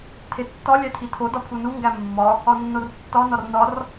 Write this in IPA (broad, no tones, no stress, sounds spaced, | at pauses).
tʰ e tː ɒ lʲ æ tʰ i tʰ o d ɒ pʰ u n u ŋ ɡ æ mː ɒ | ɒ nː o r tː ɒ n ɒ r n ɒ r